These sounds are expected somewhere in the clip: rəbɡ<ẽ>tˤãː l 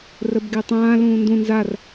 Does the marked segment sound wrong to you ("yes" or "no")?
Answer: yes